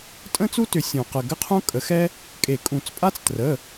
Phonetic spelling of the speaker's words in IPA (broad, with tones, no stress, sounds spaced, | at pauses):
tʼ ə̃˥ t͡s u˥ t ʏ˨˩˦ sʲ ũ˨˩˦ q ə˩˧˩ ɡ ə˥ qʰ ũ˥ kʼ ə˨˩˦ x ɛ˥ | kʼ e˨˩˦ kʼ ũ˨˩˦ t͡s pʼ a˥ t͡s t r ə˩˧˩